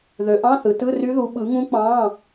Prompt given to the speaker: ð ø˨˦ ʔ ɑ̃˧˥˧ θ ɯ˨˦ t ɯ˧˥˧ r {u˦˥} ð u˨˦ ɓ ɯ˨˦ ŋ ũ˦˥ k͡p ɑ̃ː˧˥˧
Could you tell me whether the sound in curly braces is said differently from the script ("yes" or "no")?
yes